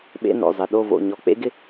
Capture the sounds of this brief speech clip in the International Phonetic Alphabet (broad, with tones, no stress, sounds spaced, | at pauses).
ɓ ḛ˧˥˧ n o̰˩˧˩ zˤ ɪ˩˧˩ ɗ o˥˨ v o̰˩˧˩ ɲ ɔ˧˩˧ k͡p ḛ˦˥ ɡ ɪ˥˨